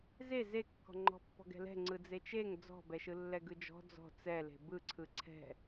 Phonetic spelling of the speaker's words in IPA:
z e z e kː ɔ̤ ŋ͡ǃ ɔ̤ pː ɔ̤ ɡ ɛ̤ l ɛ̤ ŋ͡ǀ ɯ d͡z e t͡ʃ e ŋ d͡z ɔ̤ b ɛ ʃ ɯ lː ɛ ɡ ɯ d͡ʒ ɔ̤ d͡z ɔ̤ t͡s ɛ l e̤ b ɯ ǀʰ ɯ ǀʰ ɛ̤

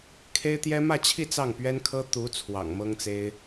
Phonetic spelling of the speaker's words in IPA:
kʰ e˥ ɪ̯ t̪ j ɛ˥ m ä˥˧ t͡ɕʰ i˥˧ t͡s ɑ˥˩ ŋ p ɥ ɛ˥ n kʰ ɤ˥ t̪ u˧˥ t͡sʰ w ɑ̰˨˩ ŋ m ɤ˥ ŋ t͡s e˥ ɪ̯

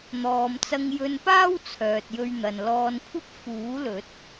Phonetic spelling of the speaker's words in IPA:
n̪ ɔː˨ m t͡s ɐ˧ ŋ j ɵ˧ n p aː˥ w t͡sʰ œː˨ t̚ j ɵ˧ ɥ n̪ ɐ˨ n l ɔː˧ n kʷʰ ɐ˥ p̚ f uː˨˥ l ɵ˨˥ t̚

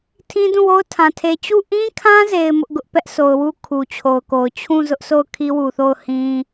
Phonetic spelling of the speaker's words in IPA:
tʰ ĩ˦ d ũ˦˨ w o˦ ʊ̯ tʰ ã˨ tʰ e˨ t͡ɕ u˦˨ ʔ ĩ˦ kʰ ã˦ z e˨ ɪ̯ m ʊ˦ ʔ ɡ ʊ˦ ʔ p ɛ˦ ʔ sʰ o˨ ʊ̯ w u˦ kʰ u˨ t͡ɕʰ o˨ ʊ̯ k o˨ ʊ̯ t͡ɕʰ ũ˦˨ z ʊ˦ ʔ sʰ o˦˨ ʊ̯ kʰ i˦ w u˨ θ o˦˨ ʊ̯ h ĩ˦

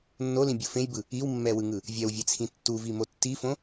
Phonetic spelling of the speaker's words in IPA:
nː o l ĩ bʲ u f ẽ j b ɯ | i w mː ɛ w ɯ ŋ ɯ | vʲ ɛ w vʲ e t͡sʰ ĩ tː u v i m o tː i f õ

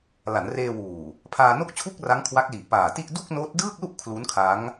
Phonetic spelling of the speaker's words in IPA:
l a˩˦ n r eː˧ w uː˨˩ | pʰ aː˧ n o˥˩ k̚ t͡ɕʰ u˥˩ k̚ r a˦˥ ŋ kʰ w a˦˥ k̚ l i˨˩ ʔ p aː˨˩ t i˥˩ ʔ d u˥˩ k̚ n oː˦˥ t̚ d ɯː˥˩ k̚ l u˥˩ ʔ kʰ l u˦˥ n kʰ a˦˥ ŋ

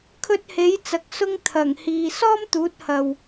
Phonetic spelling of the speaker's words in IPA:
kʰ ɵ˧ t̚ h e˨˥ j t͡s ɐ˨˥ k̚ s ʊ˥ ŋ t̪ʰ ɐ˨˩ ŋ h iː˨ s ɔː˥ m t̪ uː˨˥ t̚ h ɐ˨ w

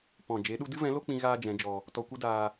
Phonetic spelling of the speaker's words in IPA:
p ɔ̃˨ d͡ʒ e˨˦ ɗ u˧ d ɨ˦ v ɛ̃˨˦ l o˦ k͡p ĩ˧ ɣ aː˦ d͡ʒ ɛ̃˨˦ d͡ʒ ɔ˧ | t ɔ˧ kʷ ɨ˦ d aː˧

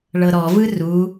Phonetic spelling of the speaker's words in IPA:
ɭ ɤ ɾ ɔ v ɯ r u

